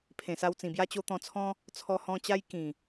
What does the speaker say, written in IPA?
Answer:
pʰ ẽ˨˩ s a˧ w t͡s ĩ˨˩ b j a˦ t͡ɕ o˧ t̪ ɔ̃˧ t͡sʰ ɔ̃˦ | t͡sʰ ɔ˧ h ɔ̃˧ t͡ɕ a˦ j k ĩ˨˩

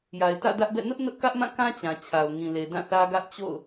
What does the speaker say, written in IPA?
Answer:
j a˨ ɪ̯ t ä̰˦˨ d ä˦ ʔ b ɛ̰˦˨ n ʊ˦ ʔ n ʊ˦ ʔ k ä˦ ʔ m ã˦˨ k ã˦ t͡ɕ ã˨ t͡ɕʰ a˨ ʊ̯ ŋ ĩ˨ l e˨ d ã˦˨ θ ä˦ ɡ ä˦ ʔ t͡ɕ o̰˦˨ ʊ̯

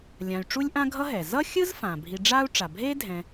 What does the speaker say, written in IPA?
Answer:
lʲ ã˨ y̯ ʈ͡ʂ u˥ lʲ ʔ ã˥ ɡʱ ʌ˥ ɦ ɛ˩ z ʌ˥ xʲ ɯ˥ z f ã˩ bʱ i˨ ɖ͡ʐ aː˦ u̯ ʈ͡ʂ a˩ bʱ eː˥ dʱ ɛ̃˨

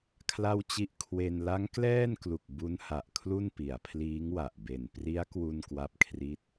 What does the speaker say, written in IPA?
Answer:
kʰ l a˥˩ w t͡ɕ i˥˩ ʔ kʰ w e˧ n l a˦˥ ŋ k l ɛː˥˩ n k l u˨˩ k̚ b u˦˥ n h a˨˩ ʔ kʰ l u˥˩ n p i˩˦ a̯ pʰ l iː˦˥ ŋ w a˨˩ ʔ b e˨˩ n p r i˦˥ a̯ k w u˥˩ n k w a˥˩ p̚ kʰ r i˥˩ t̚

